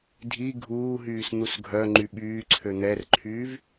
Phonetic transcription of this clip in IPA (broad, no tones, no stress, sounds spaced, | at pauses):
dʱ i ɡʱ uː ɦ yː s n̪ u s ɡʱ œ ŋ͡ǃ y ɓ yː ǀʰ ø n̪ ɛ r ǃʰ yː v